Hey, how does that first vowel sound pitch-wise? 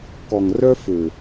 low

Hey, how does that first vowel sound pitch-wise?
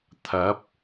rising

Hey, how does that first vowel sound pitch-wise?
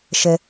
high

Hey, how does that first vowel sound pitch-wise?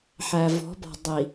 low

